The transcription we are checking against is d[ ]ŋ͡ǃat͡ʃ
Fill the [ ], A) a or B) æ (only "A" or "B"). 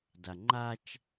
A